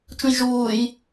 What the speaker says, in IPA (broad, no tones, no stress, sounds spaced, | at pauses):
t͡ʃ ũ j ʒ uː j